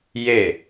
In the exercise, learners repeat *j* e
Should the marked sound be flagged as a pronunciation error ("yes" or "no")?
no